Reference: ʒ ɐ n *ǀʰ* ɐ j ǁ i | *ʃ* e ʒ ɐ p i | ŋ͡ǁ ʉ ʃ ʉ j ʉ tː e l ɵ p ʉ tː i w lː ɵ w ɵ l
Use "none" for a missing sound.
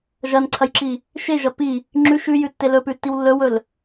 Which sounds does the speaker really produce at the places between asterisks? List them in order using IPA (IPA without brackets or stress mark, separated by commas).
ǀʰ, ʃ